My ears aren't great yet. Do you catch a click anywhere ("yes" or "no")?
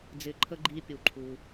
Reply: yes